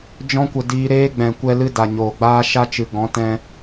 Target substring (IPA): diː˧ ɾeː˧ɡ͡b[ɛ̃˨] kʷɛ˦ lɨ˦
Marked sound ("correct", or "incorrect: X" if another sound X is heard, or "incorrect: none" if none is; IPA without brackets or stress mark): correct